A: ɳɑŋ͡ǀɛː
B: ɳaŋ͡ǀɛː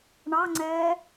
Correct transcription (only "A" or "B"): A